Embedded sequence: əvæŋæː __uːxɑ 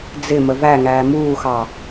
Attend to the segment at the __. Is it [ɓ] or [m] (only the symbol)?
m